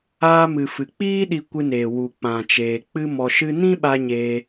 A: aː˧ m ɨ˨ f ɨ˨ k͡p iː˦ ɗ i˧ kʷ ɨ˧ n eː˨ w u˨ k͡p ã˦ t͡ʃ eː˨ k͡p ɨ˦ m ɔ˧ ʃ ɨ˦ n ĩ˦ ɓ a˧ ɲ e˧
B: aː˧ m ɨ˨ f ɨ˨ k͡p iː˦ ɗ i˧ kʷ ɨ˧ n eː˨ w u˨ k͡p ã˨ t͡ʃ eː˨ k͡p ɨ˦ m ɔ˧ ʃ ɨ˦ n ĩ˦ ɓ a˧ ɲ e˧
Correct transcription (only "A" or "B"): B